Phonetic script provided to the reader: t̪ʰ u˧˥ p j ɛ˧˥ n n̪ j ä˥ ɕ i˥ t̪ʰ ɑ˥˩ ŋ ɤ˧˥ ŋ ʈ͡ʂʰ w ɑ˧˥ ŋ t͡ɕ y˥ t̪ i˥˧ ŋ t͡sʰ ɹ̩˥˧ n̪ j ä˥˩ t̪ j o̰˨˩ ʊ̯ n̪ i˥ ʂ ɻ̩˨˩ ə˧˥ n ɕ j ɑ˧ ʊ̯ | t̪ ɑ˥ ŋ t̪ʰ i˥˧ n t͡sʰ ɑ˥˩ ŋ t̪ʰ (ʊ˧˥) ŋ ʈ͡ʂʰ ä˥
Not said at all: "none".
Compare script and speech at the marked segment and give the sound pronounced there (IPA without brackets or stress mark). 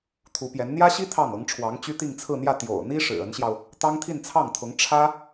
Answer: ʊ˧˥